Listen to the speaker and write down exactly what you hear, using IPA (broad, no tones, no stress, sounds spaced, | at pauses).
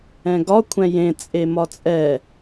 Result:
ɛ̃ ɡ ɒ kʷʰ ɛ̃ j ẽ t͡sʼ e m ɒ t͡sʼ ɛ